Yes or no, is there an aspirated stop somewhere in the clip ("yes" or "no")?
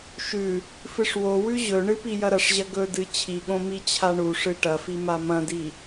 yes